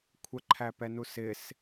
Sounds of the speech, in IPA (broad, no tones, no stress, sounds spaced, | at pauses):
kʷʰ ə ǃʰ æ p ɛ n u s ɪ s